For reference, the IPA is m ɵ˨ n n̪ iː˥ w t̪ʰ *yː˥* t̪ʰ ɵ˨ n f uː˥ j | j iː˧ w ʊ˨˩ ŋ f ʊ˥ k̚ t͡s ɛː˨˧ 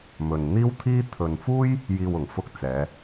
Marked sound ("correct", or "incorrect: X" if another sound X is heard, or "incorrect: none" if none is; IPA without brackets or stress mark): incorrect: iː˥